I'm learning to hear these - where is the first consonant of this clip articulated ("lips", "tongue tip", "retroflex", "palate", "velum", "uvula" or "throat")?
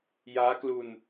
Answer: palate